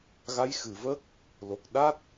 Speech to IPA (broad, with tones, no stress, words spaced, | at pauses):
ɣa˧˥jxɨ˨˩˨və˦˥k̚ | lo˨˩k̚ ɗa˦˥t̚